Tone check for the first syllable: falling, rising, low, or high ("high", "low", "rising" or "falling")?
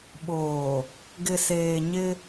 low